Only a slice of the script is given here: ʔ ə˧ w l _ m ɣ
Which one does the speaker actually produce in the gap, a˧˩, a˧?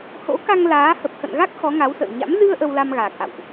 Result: a˧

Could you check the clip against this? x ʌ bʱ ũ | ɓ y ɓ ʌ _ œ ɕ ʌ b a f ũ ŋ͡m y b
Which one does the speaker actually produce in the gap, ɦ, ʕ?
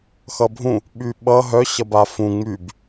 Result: ɦ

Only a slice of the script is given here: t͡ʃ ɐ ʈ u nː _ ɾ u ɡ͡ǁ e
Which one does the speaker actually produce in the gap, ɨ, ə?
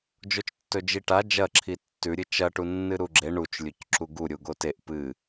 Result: ɨ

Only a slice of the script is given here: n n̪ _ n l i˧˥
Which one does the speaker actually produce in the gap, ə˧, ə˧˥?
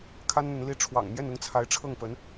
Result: ə˧˥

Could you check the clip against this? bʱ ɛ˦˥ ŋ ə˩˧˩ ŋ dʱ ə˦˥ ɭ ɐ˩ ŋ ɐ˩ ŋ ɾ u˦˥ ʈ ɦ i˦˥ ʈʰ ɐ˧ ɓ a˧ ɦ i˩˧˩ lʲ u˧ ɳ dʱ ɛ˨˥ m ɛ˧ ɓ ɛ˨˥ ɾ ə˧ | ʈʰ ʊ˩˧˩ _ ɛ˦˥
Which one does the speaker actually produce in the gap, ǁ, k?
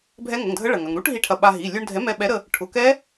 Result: k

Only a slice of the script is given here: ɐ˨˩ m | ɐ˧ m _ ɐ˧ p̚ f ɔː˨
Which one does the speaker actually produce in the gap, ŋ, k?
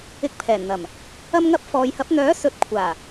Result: ŋ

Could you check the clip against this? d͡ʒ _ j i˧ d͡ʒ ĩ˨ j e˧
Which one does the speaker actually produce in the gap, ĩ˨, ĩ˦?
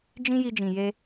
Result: ĩ˦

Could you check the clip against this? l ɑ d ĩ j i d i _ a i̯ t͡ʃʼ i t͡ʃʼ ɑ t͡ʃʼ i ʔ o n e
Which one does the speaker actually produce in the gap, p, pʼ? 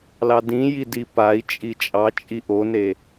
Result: p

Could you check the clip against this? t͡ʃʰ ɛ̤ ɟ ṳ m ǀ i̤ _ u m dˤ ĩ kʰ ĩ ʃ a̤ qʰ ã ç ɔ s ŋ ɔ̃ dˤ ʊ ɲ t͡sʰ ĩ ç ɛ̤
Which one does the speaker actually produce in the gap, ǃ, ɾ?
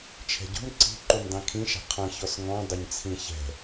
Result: ǃ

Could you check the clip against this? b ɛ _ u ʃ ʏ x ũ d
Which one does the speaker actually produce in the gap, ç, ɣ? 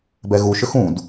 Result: ɣ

